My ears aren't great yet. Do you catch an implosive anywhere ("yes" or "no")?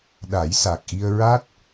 yes